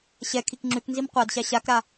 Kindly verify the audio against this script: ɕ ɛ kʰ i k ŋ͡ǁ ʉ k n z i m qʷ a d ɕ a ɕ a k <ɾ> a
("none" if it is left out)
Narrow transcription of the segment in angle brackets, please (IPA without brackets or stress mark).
ɾ